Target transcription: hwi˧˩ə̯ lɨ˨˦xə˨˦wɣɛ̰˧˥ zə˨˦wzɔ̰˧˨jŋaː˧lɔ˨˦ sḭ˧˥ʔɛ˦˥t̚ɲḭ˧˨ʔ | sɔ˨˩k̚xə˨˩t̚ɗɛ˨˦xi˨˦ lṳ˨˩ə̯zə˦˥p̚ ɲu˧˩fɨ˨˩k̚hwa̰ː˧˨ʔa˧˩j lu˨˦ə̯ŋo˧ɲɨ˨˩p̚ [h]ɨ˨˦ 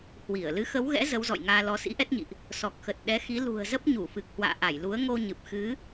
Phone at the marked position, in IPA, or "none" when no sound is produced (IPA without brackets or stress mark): x